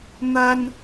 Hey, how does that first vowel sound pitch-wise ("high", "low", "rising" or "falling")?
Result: high